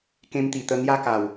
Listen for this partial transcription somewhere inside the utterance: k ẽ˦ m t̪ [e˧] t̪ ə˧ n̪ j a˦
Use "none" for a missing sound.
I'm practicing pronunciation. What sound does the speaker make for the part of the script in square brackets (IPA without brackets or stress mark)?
i˧